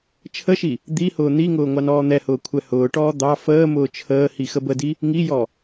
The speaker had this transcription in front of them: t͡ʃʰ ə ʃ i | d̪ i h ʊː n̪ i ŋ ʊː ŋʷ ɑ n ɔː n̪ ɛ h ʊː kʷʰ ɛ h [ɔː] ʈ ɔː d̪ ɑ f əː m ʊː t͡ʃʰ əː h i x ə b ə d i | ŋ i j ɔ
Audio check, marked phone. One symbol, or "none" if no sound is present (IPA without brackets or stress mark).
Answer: ʊː